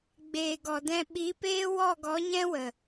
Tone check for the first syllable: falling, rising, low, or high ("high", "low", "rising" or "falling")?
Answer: low